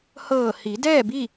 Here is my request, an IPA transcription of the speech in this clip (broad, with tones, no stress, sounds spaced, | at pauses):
h ɤː˧˩ h i˩˧ d ɛː˥˨ b i˥˨